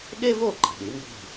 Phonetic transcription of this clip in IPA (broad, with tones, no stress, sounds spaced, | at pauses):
ɠ e˥ v o˥˩ ǃ i̤˩ ɗ i˩˥ m b i̤˥˩